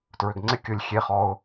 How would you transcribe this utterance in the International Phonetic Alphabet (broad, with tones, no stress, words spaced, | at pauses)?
tɹʏ˨ɡŋ͡ǀɪ˦ kʲʊ˦˨lʲ xʲe˦χɔ˦ʊ̯